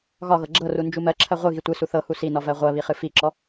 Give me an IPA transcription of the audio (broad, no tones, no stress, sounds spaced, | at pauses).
ɣ ɒ ɣ ɤ ɡ͡ǁ ɤ r u n d͡ʒ u m ɜ ǁʰ ɜ ʁʷ ɨ ɣ i tʷ ɨ s u θ ɤ h u s i n ɒ v ɜ ʁʷ ɜ β i χ ɨ f i ǁ ɔ